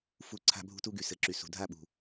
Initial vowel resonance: oral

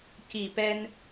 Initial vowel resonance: oral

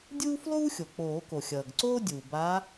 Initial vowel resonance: oral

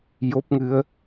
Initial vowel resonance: oral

